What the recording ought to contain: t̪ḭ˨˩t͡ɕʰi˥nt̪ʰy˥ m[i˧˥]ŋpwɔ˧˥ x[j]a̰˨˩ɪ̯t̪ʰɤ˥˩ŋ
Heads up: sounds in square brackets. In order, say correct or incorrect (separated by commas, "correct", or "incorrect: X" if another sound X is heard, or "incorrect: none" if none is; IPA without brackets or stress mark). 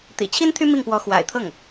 incorrect: i˥˩, incorrect: w